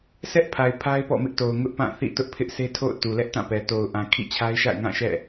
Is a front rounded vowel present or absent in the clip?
absent